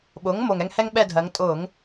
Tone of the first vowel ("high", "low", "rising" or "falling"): rising